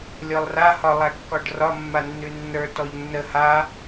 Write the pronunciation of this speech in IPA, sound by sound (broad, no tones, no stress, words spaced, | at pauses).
lʲɔlˠra hɒ lˠækːɔɖrɒ mːanːʉnːə˞ tɔʎnːə ha